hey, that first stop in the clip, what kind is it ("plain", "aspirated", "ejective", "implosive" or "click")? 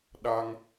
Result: implosive